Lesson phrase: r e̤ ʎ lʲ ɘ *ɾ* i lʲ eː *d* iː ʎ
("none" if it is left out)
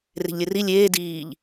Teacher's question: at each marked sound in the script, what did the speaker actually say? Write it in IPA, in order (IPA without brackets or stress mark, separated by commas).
r, d